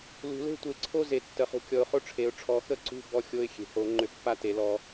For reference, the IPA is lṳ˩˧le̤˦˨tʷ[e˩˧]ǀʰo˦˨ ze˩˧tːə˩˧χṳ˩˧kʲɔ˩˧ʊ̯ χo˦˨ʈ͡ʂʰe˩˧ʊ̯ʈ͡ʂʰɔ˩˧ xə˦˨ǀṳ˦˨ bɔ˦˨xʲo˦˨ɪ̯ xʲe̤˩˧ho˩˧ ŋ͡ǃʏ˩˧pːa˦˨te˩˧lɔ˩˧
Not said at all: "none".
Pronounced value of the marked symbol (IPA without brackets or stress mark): e˩˧